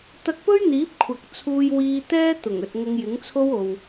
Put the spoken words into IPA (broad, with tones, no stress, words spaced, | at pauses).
t̪ɐ˧k̚pɵ˥ɥn̪iː˨˥p̚ kʷʰɐ˨˥k̚t͡sʰuː˧jwiː˧ t̪ɛː˥t̪ʊ˨˩ŋɵ˨t̚ ŋʊ˨˧ŋjɪ˨˥ŋt͡sʰo˥w o˧w